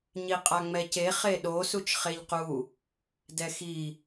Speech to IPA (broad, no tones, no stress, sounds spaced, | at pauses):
ɲ i qʼ a ŋ͡m ɛ c e χ e ɗ o s u t͡ʃ χ e ʎ q u | d ɛ x i